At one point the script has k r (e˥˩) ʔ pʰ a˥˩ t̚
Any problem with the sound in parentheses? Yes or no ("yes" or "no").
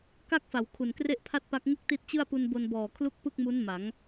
no